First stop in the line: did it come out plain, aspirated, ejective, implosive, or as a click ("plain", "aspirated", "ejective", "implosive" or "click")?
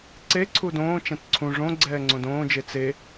click